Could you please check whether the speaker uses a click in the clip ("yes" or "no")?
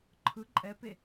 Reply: yes